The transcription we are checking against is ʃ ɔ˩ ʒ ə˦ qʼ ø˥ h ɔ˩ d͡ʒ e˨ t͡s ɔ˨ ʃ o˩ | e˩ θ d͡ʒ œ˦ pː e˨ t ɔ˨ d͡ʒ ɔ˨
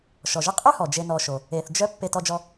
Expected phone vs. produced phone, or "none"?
t͡s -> n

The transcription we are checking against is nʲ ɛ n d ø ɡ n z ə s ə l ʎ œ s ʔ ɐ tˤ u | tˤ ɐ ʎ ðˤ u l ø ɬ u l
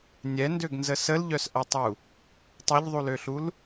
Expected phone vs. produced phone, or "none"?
none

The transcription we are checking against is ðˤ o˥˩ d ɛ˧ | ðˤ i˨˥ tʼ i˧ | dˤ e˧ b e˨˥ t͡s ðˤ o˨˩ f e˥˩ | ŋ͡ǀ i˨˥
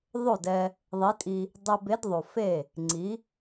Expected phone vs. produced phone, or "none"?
t͡s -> d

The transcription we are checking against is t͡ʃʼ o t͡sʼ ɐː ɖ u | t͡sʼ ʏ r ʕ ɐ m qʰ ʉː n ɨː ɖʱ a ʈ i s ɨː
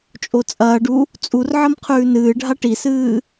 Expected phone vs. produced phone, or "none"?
ʏ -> u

